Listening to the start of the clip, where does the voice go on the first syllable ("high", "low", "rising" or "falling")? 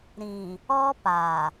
low